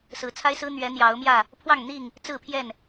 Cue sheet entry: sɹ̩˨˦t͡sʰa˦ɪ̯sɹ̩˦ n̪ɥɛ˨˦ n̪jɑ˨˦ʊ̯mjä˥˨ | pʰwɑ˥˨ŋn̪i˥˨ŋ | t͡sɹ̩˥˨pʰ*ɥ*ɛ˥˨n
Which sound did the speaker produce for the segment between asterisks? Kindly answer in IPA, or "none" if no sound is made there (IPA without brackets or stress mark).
j